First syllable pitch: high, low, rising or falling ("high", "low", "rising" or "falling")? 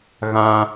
high